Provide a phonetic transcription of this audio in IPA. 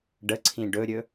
ɖ ə ǀʰ ĩ ɖ ɵ ɾʲ ɵ

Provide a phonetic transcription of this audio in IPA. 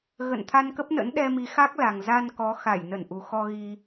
ɣ ə̰˧˨ n t̪ʰ a˧ n k ə˦˥ p̚ n ə̰˧˥ n ɗ ɛ˧ m i˨˦ x a˦˥ k̚ l a˨˩ ŋ z a˧ n k ɔ˨˦ x a˧˩ j n ə˧˩ n ʔ u˨˩ x ɔ˧ ɣ i˧

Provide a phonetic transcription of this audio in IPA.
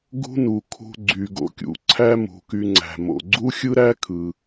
ɡ ṳ˥ n u˩ kʰ ṳ˧ ɡ͡ǀ y˩ ɡ o̰˩ kʲ ṵ˩ ǀʰ æ˥ m ṳ˩ k y˧ ŋ͡ǀ æ̤˩ m o̰˩ ɡ͡ǀ u˥ xʲ ɯ˥ ɾ æ˥ kʰ ɯ˩

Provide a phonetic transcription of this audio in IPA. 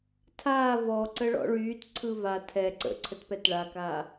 tʰ aː v ɔ ǀ ə ɭ ɔ̰ ɭ yː t ǀʰ ɯ v a tʰ ɛ ǀ ə̰ ǀʰ ə t p ɛ t ɭ a k aː

